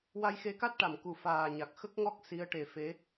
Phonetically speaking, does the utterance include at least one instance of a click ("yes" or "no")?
no